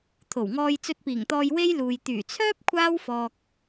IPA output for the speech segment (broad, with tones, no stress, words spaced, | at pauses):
t̪ʰo˨˩wŋɔː˧j t͡sɵ˧t̚piː˨˩ŋt̪ɔː˧j we˥j luː˨j t̪yː˨˩t͡sʰœː˥p̚ kʷʰaː˥w fɔː˨k̚